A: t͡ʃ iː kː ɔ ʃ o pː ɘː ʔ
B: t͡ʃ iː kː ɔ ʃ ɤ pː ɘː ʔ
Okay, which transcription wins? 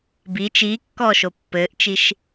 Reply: A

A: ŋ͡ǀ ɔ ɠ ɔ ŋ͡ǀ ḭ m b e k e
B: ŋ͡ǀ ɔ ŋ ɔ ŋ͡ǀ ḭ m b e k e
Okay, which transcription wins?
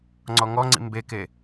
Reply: B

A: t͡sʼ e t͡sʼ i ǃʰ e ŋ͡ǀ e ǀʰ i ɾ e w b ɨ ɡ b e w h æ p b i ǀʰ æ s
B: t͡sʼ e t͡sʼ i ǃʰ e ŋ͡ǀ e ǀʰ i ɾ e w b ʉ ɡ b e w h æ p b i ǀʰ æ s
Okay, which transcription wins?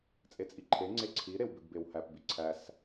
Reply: B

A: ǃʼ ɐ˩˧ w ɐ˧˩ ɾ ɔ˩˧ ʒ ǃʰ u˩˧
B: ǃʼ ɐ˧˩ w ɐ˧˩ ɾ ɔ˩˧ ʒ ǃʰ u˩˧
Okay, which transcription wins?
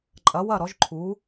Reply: A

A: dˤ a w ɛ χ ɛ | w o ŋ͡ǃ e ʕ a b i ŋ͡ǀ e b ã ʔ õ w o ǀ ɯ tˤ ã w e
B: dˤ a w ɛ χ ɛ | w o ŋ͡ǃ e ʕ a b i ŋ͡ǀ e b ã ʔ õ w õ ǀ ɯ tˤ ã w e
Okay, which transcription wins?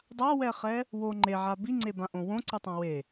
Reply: B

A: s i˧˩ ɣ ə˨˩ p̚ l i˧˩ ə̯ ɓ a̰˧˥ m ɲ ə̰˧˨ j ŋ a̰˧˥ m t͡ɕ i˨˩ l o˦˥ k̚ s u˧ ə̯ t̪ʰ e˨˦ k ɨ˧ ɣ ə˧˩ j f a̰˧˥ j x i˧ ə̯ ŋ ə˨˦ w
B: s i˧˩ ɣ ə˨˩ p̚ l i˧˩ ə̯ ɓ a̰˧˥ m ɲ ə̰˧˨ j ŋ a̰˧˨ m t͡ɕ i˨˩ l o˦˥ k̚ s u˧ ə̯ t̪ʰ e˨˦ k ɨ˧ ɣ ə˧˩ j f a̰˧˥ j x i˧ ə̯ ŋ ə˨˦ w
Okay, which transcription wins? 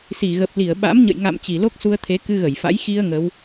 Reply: B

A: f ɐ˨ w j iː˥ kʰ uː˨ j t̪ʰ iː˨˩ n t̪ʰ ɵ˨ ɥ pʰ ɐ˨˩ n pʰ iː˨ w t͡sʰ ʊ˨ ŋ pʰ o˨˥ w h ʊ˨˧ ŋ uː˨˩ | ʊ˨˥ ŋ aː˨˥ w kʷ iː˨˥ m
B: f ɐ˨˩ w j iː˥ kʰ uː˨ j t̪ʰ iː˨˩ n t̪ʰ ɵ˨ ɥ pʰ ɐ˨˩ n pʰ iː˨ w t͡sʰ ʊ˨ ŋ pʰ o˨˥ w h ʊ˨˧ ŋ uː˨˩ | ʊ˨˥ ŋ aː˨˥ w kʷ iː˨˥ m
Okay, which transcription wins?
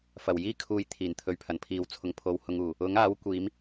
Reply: B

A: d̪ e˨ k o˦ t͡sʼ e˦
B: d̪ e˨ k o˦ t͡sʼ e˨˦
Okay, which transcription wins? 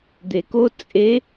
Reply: B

